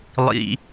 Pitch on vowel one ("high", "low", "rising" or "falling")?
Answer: low